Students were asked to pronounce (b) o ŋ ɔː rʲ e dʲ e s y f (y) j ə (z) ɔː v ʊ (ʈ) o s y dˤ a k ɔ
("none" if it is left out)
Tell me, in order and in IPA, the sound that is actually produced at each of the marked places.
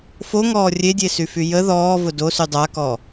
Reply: f, y, ð, d

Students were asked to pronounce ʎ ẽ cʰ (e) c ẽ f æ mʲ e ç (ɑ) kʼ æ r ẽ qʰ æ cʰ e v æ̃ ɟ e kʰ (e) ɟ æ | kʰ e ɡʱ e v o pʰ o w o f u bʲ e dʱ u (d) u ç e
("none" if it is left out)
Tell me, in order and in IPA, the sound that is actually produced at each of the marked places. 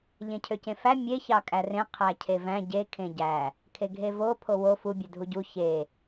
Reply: ø, ɑ, ẽ, ɟ

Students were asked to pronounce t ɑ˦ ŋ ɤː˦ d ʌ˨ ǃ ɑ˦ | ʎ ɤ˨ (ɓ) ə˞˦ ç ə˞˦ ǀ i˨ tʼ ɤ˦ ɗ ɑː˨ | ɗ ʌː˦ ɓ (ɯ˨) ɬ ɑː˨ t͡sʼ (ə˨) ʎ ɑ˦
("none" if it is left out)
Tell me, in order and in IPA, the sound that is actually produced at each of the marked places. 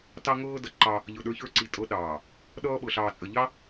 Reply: ɗ, ɤ˨, ə˨

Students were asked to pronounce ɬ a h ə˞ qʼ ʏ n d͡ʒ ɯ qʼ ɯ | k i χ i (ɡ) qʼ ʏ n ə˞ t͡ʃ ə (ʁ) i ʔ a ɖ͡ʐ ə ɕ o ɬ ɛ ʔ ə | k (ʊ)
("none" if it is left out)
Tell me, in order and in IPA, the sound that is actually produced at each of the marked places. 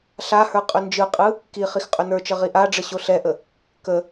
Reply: x, ʁ, ə

